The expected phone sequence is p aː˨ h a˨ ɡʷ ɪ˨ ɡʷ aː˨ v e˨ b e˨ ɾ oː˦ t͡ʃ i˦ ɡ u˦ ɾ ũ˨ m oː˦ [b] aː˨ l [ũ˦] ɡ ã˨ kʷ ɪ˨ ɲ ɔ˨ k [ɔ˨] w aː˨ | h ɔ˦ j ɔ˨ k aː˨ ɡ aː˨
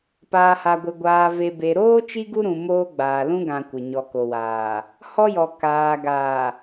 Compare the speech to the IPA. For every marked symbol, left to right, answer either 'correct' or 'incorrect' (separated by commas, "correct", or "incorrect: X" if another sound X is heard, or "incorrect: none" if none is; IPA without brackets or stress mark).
incorrect: ɡ͡b, correct, incorrect: o˨